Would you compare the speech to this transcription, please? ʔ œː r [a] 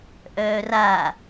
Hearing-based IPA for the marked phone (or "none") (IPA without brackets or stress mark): a